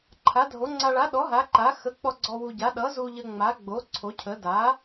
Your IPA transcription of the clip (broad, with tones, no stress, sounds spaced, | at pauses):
ǃʰ a˨˥ dʱ o˨˥ ŋ͡ǀ a˧ ɭ a˨˥ ɗ ɔ˨˥ ɦ a˨˥ ǃ a˨˥ x ə˨˥ k͡p ɔ˧ ɡ͡ǀ ɔ˧ w u˧ ɟ a˨˥ ɗ ʌ˨˥ z u˧ ʎ ə˧ ŋ͡m a˨˥ ɡ͡b o˨˥ ǀʰ o˨˥ cʰ ə˨˥ d a˨˥